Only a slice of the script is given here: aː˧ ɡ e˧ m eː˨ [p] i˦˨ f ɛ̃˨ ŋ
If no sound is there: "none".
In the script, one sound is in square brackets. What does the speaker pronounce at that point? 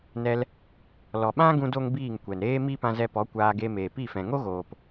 p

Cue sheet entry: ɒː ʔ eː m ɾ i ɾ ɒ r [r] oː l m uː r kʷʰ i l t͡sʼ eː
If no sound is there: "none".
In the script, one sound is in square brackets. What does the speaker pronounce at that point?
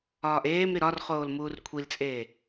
χ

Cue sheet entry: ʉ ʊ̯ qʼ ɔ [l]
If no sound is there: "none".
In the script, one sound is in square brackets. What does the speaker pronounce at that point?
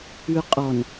n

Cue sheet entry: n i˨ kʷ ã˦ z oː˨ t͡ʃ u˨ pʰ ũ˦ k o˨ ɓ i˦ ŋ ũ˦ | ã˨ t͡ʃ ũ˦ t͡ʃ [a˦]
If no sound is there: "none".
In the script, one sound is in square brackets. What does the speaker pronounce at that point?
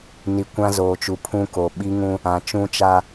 a˦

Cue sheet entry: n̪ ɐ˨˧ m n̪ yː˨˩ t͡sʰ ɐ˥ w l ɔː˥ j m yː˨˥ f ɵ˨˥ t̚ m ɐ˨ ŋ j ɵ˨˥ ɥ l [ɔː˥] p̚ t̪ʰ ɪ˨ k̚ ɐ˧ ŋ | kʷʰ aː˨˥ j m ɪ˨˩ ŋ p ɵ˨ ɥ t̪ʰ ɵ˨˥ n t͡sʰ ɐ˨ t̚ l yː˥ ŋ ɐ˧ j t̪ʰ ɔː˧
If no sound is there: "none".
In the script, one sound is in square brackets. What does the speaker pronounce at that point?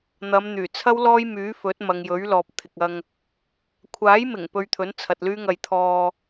ɔː˨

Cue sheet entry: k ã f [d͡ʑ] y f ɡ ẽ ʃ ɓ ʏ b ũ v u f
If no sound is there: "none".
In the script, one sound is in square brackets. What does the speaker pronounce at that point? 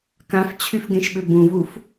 t͡ɕʰ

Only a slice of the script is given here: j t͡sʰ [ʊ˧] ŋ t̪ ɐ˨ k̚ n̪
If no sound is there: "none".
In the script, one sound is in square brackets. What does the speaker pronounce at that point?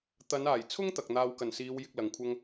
ʊ˥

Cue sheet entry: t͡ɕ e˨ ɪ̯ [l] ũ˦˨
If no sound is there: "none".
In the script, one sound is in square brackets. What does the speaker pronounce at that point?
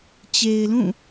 l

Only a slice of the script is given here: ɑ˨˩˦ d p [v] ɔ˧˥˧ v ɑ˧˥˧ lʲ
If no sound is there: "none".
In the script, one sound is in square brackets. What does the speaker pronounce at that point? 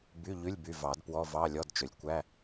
w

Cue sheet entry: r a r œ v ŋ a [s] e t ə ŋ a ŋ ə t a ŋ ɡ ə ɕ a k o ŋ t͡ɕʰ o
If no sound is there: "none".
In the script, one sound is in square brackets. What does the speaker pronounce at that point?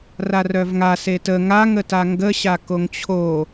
s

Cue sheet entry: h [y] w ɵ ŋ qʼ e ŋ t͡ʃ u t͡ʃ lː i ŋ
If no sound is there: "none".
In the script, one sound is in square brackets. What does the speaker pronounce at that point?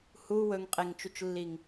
u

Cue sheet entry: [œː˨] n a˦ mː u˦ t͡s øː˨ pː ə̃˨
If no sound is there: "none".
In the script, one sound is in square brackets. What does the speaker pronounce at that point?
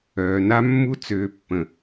œː˨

